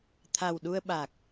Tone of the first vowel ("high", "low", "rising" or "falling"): low